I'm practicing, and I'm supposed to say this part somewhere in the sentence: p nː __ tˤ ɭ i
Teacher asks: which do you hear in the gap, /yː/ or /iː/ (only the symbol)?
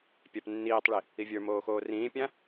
iː